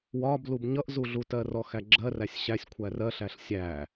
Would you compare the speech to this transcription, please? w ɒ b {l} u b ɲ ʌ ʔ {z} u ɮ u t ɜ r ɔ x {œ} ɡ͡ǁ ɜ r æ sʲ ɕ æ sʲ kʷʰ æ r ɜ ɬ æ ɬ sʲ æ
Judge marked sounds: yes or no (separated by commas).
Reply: yes, yes, no